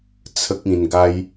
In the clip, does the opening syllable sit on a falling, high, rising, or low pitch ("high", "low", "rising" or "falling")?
high